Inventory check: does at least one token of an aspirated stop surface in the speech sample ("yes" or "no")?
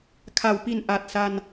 yes